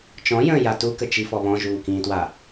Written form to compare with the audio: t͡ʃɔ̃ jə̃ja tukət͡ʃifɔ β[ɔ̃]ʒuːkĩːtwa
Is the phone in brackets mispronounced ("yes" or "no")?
no